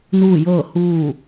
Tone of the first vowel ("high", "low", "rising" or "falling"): falling